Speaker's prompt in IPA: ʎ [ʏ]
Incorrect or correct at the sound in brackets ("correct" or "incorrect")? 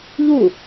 incorrect